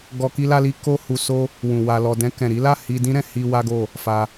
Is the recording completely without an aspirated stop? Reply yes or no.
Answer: yes